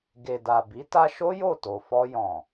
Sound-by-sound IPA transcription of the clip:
ɡ e˨ d a˨ b i˨˦ t a˧ ʃ o˦ j o˦˨ t o˨ f ɔ˧ j ɔ̃˨

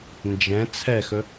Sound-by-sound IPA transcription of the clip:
n d͡ʒ ɛ̃ t͡sʰ ɛ x ɵ

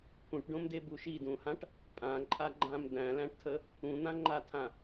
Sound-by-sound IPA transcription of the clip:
pʰ ũ ʈ ɖ õ m d e b u ʃ i d ũ h ã ʈ | pʼ ã ǃʼ a ɡ͡ǃ ã m d̪ æ̃ l æ̃ ʈ tʰ ə | ũ n̪ ã ŋ͡ǃ a tʰ ã

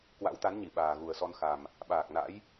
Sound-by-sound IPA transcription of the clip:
k w a̰˧˥ w t̪ a˨˦ n ɲ i˧˩ ɓ aː˨˩ ɣ u˨˩ ə̯ s ɔ˧ n x a˨˩ m | ɓ aː˨˩ k̚ n a̰˧˥ j

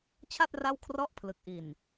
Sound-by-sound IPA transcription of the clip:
t͡ɕʰ a˥˩ t̚ r a˥˩ w kʰ r ɔ˥˩ ʔ pʰ l ɯ˨˩ k̚ ʔ i˨˩ n

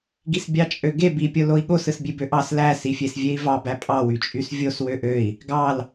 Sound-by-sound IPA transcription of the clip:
ɡ i s bʲ ɑ t͡ʃʼ ø ɡ e b i pʲ o l o i̯ ɠ o s ɯ s bʲ e b ø ʔ ɑ s l æ s i fʲ e s vʲ e i̯ v ɑ b æ pʼ ɑ w y t͡ʃʼ y s vʲ o s w ø ʔ ø i̯ | ɡ ɑ l

